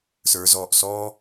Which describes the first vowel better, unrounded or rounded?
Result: unrounded